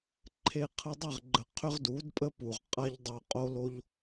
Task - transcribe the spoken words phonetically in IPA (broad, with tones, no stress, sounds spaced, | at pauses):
ǃʰ e˧ qʰ ə˧ dˤ ə˦˨ ʁ ɡ͡ǃ ə˨ qʰ ʏ˦ ʁ d u˨˦ d pʼ ə˦ p u˨ ʁ qʼ a˦ ʎ dˤ o˧ qʼ o˧ l o˧ ʎ